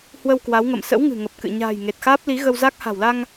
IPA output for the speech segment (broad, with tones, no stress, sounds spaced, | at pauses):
h w ə˧ w k w a˨˦ w ŋ ə̰˧˨ m s ə̰˧˥ w ŋ ɨ̤˨˩ ŋ ə˨˩ p̚ k ɨ̰˧˨ ɲ a̤ː˨˩ j ŋ e˨˩ t̚ x aː˦˥ p̚ l i˨˦ ɣ ə˧ w z a˦˥ k̚ h a̤˨˩ w l a˧ ŋ